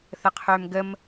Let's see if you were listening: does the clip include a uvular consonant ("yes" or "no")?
yes